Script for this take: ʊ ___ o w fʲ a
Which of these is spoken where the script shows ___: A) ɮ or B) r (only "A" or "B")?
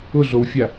A